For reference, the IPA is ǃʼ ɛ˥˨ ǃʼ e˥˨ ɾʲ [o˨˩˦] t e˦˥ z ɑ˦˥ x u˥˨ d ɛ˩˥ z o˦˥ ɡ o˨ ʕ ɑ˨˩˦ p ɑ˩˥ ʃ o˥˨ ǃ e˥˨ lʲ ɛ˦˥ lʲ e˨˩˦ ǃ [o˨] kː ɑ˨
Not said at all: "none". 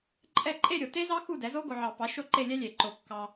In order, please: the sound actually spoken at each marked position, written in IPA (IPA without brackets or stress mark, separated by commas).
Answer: o˨, o˨˩˦